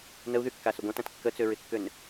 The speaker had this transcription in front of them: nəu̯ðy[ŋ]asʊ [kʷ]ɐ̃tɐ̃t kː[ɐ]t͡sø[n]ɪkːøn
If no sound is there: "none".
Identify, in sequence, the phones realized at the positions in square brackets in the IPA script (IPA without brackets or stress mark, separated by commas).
kː, ɡʷ, ə, ɹ